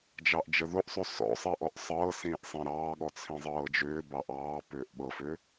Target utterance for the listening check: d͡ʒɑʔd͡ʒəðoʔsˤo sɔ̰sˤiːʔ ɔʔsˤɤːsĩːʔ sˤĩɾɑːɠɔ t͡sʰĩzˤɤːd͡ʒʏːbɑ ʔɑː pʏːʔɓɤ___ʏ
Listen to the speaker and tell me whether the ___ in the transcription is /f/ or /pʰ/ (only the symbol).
f